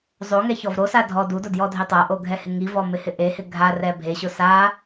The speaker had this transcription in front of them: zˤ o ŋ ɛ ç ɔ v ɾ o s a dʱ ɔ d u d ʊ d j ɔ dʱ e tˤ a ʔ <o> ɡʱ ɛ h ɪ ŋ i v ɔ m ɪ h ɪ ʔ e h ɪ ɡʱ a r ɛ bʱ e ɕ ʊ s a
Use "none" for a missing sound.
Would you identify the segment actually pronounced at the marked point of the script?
o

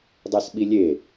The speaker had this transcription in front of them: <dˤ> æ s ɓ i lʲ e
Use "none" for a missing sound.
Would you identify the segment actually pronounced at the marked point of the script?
dˤ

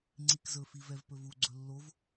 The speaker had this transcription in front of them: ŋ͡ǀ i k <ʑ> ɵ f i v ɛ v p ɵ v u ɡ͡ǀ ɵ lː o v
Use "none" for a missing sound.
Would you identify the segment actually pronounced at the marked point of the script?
z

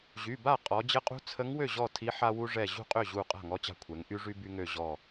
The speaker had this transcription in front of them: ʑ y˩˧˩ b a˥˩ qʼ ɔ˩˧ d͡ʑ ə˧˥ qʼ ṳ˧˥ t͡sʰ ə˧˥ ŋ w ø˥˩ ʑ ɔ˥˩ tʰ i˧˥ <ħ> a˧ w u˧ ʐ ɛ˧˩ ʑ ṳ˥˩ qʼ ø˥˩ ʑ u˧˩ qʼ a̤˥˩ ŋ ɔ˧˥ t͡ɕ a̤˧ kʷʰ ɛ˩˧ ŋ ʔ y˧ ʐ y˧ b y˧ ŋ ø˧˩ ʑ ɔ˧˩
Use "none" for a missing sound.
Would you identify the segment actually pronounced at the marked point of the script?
ħ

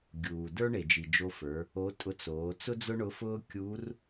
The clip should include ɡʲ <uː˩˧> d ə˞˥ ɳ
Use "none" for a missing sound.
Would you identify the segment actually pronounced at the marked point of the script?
uː˩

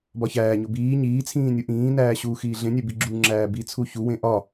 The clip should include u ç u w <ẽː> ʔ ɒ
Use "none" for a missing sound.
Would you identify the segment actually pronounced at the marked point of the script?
ẽ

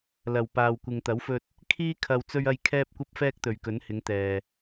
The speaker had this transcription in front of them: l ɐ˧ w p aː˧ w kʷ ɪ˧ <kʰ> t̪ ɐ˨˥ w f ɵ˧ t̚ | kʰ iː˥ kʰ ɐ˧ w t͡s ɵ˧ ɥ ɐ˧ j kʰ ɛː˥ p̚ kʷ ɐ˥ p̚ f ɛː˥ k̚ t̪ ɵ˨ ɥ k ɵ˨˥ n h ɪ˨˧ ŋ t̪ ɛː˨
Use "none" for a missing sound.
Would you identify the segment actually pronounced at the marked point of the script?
ŋ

